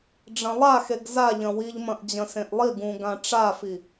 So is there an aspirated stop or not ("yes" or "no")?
no